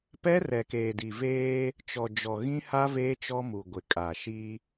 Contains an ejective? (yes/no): yes